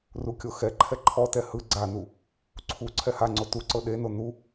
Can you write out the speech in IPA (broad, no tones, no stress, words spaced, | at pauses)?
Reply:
rukʲoxɛǃʰɛ ǃʰɔtɛ hɯ ɡ͡ǀanu | ǀʰu ǀʰɛhaŋ͡ǀo tuǀɤ ɗeno nu